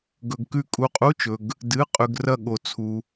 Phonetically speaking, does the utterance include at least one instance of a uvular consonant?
yes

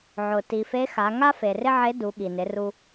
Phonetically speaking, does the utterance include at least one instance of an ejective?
no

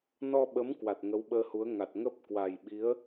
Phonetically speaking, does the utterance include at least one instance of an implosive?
yes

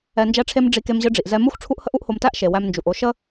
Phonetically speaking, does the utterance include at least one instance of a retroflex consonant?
yes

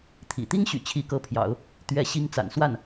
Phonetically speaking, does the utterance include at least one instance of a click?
no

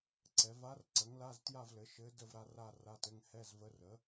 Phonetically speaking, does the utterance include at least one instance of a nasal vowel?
no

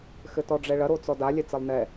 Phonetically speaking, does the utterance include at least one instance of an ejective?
no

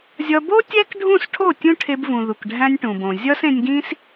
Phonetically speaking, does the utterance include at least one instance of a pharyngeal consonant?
no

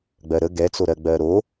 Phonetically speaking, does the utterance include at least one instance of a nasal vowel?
no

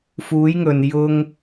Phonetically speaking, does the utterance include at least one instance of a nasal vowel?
no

